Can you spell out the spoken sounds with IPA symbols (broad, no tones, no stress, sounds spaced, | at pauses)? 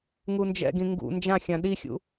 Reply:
ŋ u n d͡ʒ ɛ̰ ɡ ĩ ŋ ɡ ṵ n d͡ʒ ã xʲ ã ɗ i xʲ ṵ